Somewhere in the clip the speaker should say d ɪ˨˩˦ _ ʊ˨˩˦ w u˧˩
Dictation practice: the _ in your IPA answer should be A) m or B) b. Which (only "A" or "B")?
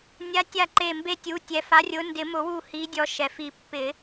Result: A